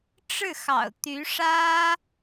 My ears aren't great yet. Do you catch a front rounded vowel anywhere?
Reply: yes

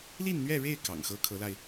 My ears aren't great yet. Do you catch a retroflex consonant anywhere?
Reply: yes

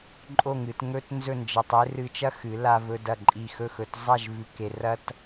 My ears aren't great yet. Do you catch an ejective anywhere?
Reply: yes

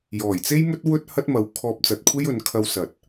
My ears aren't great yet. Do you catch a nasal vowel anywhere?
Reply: no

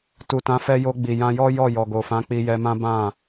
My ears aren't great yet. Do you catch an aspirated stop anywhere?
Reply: no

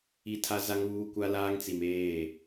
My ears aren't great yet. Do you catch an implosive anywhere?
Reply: no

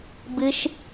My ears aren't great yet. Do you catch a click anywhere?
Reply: no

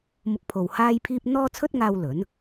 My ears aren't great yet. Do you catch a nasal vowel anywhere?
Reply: no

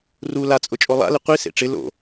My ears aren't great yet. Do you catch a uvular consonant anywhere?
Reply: yes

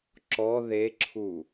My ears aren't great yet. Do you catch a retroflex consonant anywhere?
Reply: no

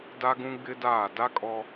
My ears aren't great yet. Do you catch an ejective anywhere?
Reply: yes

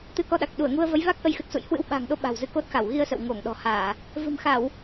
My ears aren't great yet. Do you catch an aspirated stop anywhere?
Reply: no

